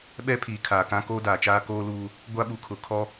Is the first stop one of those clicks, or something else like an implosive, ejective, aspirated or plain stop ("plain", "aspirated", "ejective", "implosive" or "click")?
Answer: implosive